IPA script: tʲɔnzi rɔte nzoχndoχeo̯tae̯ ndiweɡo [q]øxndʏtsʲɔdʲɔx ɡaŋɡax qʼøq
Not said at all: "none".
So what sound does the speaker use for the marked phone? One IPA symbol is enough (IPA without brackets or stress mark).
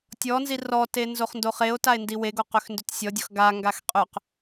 q